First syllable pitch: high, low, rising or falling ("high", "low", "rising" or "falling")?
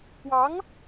rising